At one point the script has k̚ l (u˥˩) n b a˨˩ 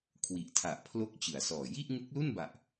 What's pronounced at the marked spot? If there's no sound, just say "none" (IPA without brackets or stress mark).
u˥˩